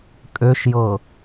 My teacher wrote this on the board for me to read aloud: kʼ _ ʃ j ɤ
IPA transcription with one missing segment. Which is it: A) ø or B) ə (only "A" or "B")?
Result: A